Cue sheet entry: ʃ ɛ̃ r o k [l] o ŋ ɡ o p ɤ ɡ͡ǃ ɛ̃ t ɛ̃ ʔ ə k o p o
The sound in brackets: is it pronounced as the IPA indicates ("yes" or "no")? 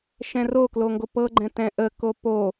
yes